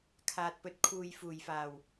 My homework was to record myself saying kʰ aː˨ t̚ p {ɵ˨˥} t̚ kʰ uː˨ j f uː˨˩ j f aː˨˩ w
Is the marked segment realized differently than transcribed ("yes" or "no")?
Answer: no